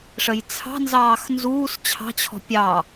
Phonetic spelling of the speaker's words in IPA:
ʂəjt͡sʰɑ̤nzɑːx nzuːs t͡ɕʰɑ̤t͡ɕʰɔ̤ pʲɑ

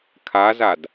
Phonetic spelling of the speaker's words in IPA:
kʰazad

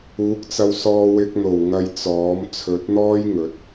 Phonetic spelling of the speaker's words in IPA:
uː˨˥k̚t͡sɐ˧w sɔː˧wɪ˧k̚n̪o˨˩w ŋɐ˧j t͡sɔː˨˥m t͡sʰɵ˨˥t̚n̪ɔː˥j ŋɵ˨˥t̚

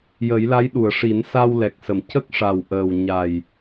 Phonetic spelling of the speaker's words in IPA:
jə˨˩˦jla˧˥jɗu˨˩˨ə̯ ʂi˨˩˦nsa˧wlɛ˨˩k̚sə˨˩˨m cə˦˥k̚ʂa˨˩w ʔəː˨˩w ɲa˨˩j

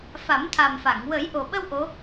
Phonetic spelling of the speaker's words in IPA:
fa˨˩˦m t̪ʰa˨˩mfa˨˩˨ŋ wə˨˩˦jʔo˨˩ɓə˧w ʔo˧˥

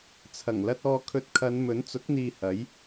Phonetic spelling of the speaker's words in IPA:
t͡sʰɐ˨˩ŋlɐ˧t̚ ɔː˧kʰɵ˧t̚ kʰɐ˨˧n mɵ˨˥nt͡sʊ˨˥k̚ n̪iː˧hɐ˨˥j

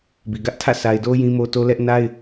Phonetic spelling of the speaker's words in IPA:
bi˨ɡä˦ʔtʰä̰˦˨ sʰa˨ɪ̯do˦ jĩ˦mo˦to˦lɛ˦ʔ na˦ɪ̯

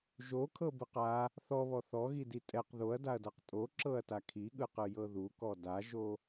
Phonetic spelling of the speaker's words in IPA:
ʒokʰɤbɯq a | θɔβɔ θɔɣidi tʼɛq ðoɐ̯daɐ̯dɤq tʼoǁɤɐ̯ta kʰiɠɯqɯjɤ ðukɔ daʒo

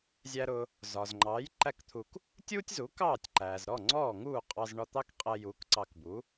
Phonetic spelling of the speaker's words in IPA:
zʲæ˧ɾʊ˧ | zɒ˩zŋ͡ǃɑː˩˥j ǃæ˥˩kt̪ʰu˧k | tʲuː˥tʲzuː˩˥kɑː˥˩tʲ ǃæː˩zɾɔ˥˩ ŋ͡ǀɔː˥˩ŋuː˥˩ qʼɑ˧zɳɒ˧t̪ɑ˥kqʼɛ˧ juː˩˥kǀɑ˧kbu˩˥

